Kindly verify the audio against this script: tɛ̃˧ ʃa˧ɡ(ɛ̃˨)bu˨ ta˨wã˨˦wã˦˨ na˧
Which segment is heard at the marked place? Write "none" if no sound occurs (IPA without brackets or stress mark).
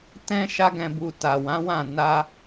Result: ɛ̃˨